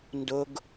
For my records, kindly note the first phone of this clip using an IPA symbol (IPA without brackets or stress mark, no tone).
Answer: n